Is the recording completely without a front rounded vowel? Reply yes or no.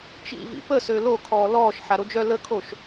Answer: no